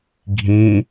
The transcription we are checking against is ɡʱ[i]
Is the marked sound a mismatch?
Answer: yes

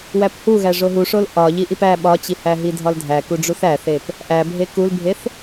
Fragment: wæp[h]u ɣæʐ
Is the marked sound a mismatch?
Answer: no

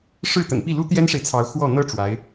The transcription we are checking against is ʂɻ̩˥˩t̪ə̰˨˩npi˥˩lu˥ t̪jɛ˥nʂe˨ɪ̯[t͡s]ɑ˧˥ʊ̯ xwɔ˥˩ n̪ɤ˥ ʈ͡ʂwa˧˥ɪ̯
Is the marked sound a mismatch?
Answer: yes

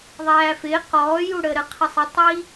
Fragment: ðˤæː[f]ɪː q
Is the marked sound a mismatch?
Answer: no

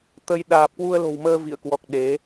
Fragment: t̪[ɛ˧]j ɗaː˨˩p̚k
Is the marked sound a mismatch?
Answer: yes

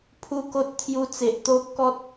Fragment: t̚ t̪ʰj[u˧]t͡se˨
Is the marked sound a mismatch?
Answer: no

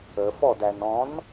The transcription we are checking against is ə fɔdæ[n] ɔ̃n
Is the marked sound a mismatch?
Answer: no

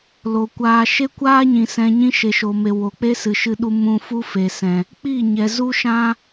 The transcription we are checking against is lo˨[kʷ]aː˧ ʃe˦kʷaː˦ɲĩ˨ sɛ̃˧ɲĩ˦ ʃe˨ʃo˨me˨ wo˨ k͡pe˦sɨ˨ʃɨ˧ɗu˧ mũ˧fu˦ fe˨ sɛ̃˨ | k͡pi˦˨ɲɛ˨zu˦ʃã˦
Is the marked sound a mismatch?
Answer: no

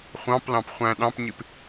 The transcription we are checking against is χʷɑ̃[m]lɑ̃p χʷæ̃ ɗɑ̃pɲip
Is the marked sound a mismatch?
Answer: yes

